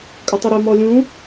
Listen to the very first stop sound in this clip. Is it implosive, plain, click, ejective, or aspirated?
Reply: ejective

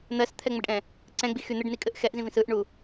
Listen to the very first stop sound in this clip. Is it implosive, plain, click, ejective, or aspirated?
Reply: aspirated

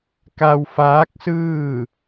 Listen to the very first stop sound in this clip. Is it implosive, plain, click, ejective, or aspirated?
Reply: plain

